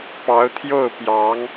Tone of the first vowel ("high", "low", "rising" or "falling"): rising